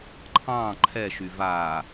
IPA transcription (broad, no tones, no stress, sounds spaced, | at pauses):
ǃʰ ɑ̃ː ǃʰ ɛ ʃ y v aː